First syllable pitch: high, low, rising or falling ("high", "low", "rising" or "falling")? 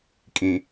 low